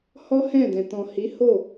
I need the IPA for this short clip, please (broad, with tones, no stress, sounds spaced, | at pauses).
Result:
h ɔ˦ h ɛ̃˦˨ d ɛ̃˨ t ɔ̃˨ h i˨˦ h o˦˨